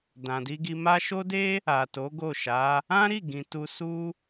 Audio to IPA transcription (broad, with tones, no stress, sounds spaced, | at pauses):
d ã˨ d i˧ ɡ i˧ m a˦ ʃ o˦ d e˦ | a˨ t o˨˦ ɡ o˦˨ ʃ a˨˦ | ã˦ ɾ i˦˨ ɡ ĩ˨ t u˧ s u˦